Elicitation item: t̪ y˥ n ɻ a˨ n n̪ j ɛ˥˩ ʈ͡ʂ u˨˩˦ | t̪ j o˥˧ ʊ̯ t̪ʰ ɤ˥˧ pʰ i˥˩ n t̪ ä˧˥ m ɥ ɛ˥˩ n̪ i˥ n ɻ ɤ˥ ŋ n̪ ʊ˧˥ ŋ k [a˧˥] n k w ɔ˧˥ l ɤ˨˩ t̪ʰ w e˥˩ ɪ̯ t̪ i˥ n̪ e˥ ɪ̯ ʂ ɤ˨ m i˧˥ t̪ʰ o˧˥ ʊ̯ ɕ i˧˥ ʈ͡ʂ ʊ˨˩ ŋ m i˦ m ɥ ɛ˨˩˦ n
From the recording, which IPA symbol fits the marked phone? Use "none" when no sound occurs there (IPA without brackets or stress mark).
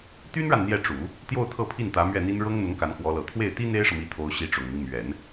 a˧˥